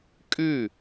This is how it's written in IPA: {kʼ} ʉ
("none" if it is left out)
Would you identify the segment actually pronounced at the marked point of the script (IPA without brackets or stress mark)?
kʼ